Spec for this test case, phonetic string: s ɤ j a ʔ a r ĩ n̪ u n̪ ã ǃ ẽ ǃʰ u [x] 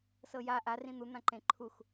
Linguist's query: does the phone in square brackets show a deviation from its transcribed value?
no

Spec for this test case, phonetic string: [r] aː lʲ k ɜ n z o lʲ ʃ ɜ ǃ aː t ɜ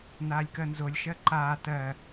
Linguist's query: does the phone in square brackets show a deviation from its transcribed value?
yes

